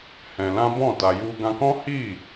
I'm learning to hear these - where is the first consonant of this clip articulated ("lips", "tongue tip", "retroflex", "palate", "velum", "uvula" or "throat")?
throat